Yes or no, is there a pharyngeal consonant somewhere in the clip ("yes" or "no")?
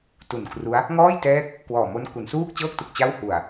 no